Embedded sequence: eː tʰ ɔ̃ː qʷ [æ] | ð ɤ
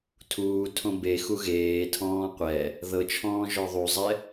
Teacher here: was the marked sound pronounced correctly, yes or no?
no